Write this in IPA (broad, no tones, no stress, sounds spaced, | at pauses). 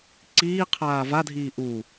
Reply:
ǀ iː qʰ aː v a dʱ iː ʔ u